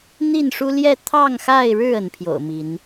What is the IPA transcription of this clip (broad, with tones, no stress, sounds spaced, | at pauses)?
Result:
n̪ i˥˨ n ʂ u˦ l j ɛ˥˨ t̪ʰ ɑ˥˨ ŋ x a˥˨ ɪ̯ ɻ ɻ̩˥˨ ə˨˦ n pʰ j o̰˨˩ ʊ̯ m i˨˦ n